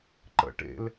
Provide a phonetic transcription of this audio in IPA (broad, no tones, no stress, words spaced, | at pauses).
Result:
ǃə̰ ʈḛl